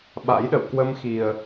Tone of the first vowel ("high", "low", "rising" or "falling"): rising